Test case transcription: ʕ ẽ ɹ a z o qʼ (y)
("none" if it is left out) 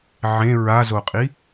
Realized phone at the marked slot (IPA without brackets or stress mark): i